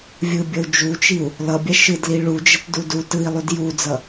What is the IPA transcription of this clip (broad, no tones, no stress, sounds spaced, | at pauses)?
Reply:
vʲ ɯ bʲ ʌ u̯ d͡ʒ u t͡ʃ i u̯ | l ʌ bʲ a ʃ ɯ d l i ɭ u d͡ʒ ʌ t d u d u t ɯ i̯ lˠ u d j u d͡z ʌ